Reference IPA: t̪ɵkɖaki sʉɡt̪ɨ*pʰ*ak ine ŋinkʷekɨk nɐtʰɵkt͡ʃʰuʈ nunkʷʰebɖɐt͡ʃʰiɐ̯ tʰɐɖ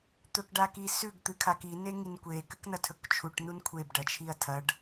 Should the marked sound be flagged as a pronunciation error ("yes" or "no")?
yes